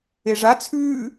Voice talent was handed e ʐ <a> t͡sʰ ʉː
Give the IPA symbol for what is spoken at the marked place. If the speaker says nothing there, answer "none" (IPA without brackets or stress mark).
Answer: a